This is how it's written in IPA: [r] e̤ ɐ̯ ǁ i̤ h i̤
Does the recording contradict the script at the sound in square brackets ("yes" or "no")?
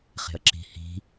yes